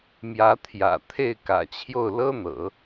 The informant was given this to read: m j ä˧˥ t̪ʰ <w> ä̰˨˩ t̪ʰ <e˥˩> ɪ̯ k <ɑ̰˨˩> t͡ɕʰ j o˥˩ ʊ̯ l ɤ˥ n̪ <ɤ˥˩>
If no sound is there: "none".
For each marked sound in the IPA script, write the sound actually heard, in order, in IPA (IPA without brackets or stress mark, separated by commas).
j, e˥˩, ä̰˨˩, ɤ̰˨˩˦